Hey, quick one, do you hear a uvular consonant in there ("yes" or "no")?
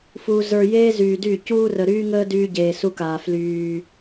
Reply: no